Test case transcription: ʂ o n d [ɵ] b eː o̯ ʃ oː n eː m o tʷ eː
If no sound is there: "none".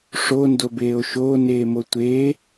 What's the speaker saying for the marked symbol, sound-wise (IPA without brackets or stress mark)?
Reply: o